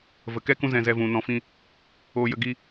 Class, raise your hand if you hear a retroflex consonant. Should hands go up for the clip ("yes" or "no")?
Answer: no